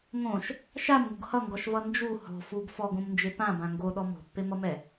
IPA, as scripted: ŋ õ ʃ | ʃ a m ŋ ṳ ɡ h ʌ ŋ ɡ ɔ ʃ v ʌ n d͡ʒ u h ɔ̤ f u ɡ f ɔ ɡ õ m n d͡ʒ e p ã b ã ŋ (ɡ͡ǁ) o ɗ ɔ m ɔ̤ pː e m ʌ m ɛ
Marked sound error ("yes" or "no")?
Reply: yes